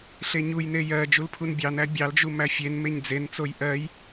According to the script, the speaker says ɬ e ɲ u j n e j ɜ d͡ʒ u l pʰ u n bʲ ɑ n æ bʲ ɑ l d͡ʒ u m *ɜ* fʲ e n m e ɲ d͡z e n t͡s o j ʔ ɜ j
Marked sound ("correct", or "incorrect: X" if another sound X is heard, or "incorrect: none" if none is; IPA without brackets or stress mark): incorrect: æ